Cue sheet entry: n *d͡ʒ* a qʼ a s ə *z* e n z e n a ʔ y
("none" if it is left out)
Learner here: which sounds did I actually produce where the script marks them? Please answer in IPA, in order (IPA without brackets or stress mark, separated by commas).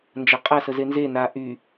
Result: d͡ʒ, z